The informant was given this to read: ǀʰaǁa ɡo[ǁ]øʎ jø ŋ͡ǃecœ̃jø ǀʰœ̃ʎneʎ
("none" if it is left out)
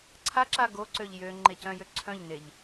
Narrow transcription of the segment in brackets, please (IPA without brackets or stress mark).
ǀ